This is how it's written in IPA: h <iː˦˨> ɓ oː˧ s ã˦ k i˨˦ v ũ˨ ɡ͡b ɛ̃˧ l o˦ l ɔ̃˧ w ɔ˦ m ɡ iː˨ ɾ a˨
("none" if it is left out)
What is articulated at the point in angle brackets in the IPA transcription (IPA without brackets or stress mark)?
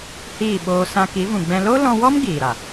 iː˦˨